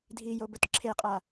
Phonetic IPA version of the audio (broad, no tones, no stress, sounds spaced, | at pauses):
dʱ i j o b ɵ t ǁʰ e qʼ a